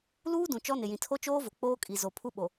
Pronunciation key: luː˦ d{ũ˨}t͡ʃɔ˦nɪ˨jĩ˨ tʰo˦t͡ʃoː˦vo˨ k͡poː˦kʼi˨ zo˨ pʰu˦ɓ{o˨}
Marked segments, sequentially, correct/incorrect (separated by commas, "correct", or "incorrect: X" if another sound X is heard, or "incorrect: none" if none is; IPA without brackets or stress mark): correct, correct